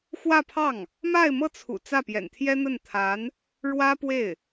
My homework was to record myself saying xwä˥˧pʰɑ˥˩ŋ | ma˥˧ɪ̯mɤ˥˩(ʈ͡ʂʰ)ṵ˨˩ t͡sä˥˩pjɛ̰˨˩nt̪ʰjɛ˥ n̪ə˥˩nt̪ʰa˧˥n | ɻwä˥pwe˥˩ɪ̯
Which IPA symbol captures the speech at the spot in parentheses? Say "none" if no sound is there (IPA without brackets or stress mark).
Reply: t͡sʰ